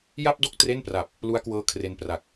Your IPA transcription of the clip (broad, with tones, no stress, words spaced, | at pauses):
ja˥˩p̚do˥˩k̚ tre˥˩npra˨˩p̚ | lu˦˥a̯kwɤː˦˥ kʰre˧npra˨˩k̚